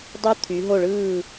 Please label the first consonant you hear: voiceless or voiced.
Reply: voiced